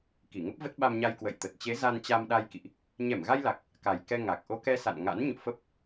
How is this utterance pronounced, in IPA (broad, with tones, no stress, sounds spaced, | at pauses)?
k i˧˩ ŋ ə˦˥ p̚ v ə˦˥ t̚ ɓ a˧ m ɲ a˧ j k w ə̰˧˨ j t̪ ə˨˩ t̚ t͡ɕ e˨˦ z a˧ n t͡ɕ a˧ m ɗ a˧ j k ḭ˧˨ ʔ | ɲ ɛ˧˩ m ɣ a˧ j l a˨˩ k̚ | k a˨˩ j k ɛ˧ ŋ a˨˩ k̚ ʔ o˧ k ɛ˧ s a̰˧˨ n ŋ a̰˧˥ n ɲ o̰˧˨ f ə˦˥ p̚